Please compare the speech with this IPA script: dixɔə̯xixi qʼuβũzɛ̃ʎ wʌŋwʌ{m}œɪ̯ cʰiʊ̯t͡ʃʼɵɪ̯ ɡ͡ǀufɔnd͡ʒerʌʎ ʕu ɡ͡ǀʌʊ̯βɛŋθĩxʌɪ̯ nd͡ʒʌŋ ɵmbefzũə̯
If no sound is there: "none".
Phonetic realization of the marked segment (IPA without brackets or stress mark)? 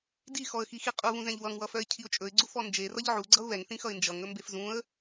f